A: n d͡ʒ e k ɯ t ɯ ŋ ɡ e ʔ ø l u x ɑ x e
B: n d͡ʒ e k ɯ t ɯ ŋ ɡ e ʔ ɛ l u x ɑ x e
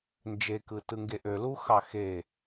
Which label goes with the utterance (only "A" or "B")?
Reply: A